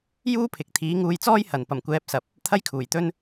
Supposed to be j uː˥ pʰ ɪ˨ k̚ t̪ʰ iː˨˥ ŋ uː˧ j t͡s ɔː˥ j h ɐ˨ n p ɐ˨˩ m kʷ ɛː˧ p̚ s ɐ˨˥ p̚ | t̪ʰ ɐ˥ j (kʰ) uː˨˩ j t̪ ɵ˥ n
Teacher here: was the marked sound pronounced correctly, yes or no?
yes